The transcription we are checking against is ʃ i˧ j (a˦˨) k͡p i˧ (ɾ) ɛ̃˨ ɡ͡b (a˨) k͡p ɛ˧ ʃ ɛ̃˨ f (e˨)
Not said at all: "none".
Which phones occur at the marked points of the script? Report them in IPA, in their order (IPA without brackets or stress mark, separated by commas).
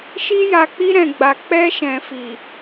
a˨, ɾ, a˨, i˨